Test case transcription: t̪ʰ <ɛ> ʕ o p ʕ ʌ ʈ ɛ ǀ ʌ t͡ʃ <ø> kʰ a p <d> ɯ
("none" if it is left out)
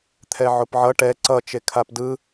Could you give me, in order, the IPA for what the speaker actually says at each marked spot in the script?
ɛ, e, d

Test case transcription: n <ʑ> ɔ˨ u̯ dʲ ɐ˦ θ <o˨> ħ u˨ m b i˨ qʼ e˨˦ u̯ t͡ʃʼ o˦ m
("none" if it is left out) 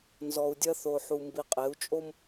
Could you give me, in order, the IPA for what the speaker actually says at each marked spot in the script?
z, o˨

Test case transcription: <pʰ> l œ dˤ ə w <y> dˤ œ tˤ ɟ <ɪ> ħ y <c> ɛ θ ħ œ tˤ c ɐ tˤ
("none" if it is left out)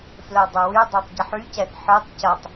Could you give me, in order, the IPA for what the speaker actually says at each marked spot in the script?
f, y, ɪ, c

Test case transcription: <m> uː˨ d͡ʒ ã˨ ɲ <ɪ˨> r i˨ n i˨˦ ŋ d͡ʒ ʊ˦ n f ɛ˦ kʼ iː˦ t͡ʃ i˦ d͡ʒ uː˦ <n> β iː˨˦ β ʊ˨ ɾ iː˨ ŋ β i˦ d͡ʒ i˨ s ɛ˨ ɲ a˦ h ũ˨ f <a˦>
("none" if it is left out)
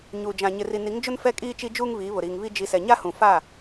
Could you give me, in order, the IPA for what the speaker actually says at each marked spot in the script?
ɲ, ɪ˨, ŋ, a˦˨

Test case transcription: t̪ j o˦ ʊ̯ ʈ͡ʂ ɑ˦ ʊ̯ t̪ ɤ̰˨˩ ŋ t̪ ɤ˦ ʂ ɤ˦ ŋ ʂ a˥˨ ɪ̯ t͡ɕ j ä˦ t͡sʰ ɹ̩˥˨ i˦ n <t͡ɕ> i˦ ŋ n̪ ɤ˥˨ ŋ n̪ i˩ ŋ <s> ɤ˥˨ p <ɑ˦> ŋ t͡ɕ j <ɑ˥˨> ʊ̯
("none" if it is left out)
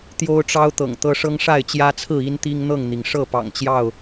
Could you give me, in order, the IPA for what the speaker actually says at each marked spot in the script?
t̪, ʂ, ɑ̰˨˩, ɑ˥˨

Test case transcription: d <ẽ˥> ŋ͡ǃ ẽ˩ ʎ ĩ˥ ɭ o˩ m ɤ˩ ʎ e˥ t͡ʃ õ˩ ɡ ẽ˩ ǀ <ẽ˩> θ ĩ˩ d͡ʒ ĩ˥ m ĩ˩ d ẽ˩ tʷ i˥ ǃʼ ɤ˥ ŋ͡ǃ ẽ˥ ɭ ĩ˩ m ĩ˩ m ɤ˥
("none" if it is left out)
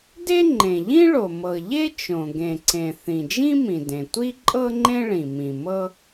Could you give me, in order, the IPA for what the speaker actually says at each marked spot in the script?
e˥, ẽ˩

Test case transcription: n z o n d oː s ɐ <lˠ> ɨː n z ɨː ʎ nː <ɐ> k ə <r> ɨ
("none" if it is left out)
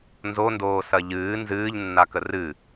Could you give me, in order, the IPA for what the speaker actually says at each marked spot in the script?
ʎ, a, r

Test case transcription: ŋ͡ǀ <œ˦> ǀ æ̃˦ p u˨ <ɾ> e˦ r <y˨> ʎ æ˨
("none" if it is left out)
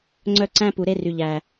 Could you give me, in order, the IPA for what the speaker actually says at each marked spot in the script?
œ˦, ɾ, y˨

